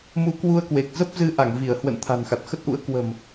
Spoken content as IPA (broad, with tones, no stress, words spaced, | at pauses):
mu˧kwu˧ə̯kwe˨˩k̚ zə˦˥p̚zɨ˨˦ ʔa˧˩ŋvi˧˩ə̯ hwə̰˧˨n t̪ʰa̤˨˩nxa˨˩t̚xə˦˥t̚ʔṵ˧˥ə̯ kwə̤˨˩m